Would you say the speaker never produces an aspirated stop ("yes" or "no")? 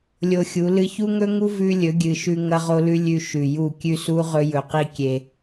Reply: yes